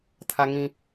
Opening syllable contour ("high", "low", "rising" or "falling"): low